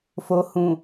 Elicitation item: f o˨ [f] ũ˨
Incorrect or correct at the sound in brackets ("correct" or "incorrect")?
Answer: incorrect